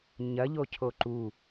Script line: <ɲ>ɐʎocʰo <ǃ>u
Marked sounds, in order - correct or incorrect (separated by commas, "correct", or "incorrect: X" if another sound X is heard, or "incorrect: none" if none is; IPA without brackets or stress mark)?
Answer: correct, correct